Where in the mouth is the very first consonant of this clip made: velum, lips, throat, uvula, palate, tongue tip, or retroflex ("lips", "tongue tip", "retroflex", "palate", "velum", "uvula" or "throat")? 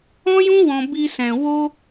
palate